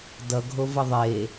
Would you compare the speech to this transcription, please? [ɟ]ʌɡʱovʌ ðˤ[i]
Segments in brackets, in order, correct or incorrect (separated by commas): incorrect, incorrect